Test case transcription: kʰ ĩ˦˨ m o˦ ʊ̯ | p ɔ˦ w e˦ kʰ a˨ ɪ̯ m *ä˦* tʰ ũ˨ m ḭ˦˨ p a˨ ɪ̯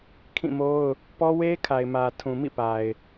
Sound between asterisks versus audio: incorrect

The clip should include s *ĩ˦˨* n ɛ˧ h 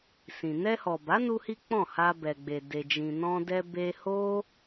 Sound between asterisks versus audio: incorrect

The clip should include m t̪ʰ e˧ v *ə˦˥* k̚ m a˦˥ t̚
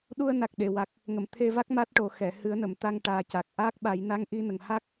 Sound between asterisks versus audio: incorrect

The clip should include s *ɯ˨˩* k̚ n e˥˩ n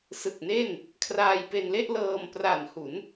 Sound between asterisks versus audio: correct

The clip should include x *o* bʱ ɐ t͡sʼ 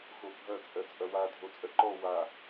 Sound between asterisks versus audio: correct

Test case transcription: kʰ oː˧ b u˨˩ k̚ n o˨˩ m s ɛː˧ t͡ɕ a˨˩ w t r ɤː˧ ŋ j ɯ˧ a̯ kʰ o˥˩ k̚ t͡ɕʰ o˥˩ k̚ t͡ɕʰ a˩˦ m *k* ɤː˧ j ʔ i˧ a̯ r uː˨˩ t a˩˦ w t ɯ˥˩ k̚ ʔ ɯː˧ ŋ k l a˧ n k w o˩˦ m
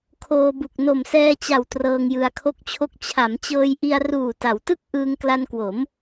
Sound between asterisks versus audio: incorrect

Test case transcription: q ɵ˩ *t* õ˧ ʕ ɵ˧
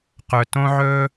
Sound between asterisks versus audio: correct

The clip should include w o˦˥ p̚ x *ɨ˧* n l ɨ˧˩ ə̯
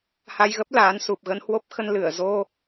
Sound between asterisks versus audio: incorrect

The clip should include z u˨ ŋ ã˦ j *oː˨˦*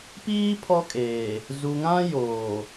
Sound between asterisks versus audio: incorrect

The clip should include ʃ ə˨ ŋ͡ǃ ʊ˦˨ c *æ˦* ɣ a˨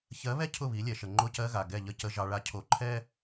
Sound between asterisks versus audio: incorrect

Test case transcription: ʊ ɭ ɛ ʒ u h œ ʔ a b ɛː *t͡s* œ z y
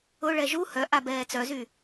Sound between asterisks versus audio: correct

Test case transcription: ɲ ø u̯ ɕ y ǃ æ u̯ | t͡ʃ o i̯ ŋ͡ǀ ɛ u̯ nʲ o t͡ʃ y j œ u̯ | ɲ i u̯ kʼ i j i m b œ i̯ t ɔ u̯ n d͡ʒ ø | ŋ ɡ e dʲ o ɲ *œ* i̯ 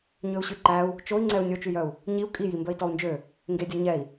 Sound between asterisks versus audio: incorrect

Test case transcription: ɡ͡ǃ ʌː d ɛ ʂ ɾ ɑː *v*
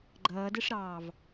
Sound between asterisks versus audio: correct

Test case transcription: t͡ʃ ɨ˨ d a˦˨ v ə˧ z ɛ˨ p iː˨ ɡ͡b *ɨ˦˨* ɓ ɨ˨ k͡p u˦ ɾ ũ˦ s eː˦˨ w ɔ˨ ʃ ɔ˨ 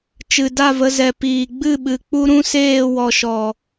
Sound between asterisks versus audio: correct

